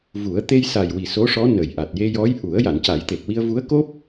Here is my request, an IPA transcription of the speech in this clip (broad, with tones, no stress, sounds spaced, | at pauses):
v u˨˩˦ ə̯ t̪ e˧ j s a˨˩ j w i˨˩ s o˧˥ ʂ ɔ˧˥ n ə˨˩ j ʔ a˨˩ t̚ j e˧ j ɔ˧˥ j ʔ u˨˩˦ ə̯ j a˨˩˨ n c a˨˩˦ j t̪ e˨˩ k̚ w i˧ ə̯ v u˧˥ ə̯ k o˦˥ p̚